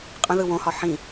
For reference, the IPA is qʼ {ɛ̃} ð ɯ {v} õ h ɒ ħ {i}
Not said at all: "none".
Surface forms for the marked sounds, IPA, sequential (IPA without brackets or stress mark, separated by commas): ə̃, w, ĩ